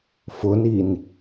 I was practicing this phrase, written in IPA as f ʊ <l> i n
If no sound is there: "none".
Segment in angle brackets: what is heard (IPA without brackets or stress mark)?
n